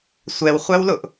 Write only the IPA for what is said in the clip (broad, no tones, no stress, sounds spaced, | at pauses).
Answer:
sʷ ɛ w χʷ æ w l ʊ ʔ